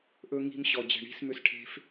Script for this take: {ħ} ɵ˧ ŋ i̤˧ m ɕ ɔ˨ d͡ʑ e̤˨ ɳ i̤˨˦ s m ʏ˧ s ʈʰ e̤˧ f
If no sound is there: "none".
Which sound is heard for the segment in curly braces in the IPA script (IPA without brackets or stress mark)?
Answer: ʔ